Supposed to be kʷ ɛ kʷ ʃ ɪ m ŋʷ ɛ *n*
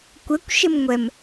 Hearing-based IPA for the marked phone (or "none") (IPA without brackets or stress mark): m